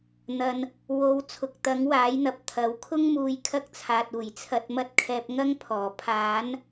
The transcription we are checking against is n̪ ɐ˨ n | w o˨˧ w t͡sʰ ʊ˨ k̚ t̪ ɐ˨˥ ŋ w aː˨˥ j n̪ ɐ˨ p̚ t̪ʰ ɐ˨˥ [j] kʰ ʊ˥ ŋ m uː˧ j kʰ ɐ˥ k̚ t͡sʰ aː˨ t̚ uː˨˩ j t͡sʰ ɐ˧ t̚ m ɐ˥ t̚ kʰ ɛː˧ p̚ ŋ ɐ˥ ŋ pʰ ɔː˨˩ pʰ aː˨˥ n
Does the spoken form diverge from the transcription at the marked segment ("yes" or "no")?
yes